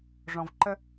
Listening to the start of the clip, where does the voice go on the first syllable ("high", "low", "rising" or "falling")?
low